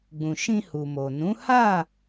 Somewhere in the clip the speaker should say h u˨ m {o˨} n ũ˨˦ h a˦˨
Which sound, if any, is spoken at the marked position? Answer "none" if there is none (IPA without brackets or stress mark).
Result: o˨